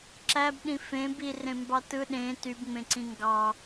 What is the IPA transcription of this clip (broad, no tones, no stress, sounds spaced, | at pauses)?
ǁ æ b ɗ ĩ f ẽ b i r ẽ m b ɑ t ɯ ɗ ẽ t y b ŋ͡m ẽ ǀ ĩ ŋ ɡ ɑ